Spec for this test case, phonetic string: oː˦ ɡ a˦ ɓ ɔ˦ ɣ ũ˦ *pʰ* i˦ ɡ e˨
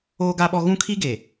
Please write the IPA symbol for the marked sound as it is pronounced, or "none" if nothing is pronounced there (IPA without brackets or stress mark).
kʰ